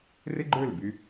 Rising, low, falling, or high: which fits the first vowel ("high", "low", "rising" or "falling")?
high